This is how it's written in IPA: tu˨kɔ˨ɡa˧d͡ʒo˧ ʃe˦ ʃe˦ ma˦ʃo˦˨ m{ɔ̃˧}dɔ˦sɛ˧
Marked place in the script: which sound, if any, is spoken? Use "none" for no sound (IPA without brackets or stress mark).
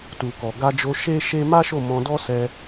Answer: ɔ̃˧